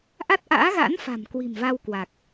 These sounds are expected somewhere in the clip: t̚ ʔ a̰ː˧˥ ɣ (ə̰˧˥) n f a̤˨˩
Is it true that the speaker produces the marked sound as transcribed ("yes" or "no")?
no